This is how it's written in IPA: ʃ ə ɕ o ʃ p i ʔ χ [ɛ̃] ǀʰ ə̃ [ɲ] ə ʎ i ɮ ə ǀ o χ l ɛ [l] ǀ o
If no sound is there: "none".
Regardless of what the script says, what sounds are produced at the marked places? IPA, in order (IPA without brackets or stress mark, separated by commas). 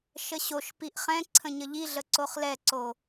ɛ̃, ɲ, none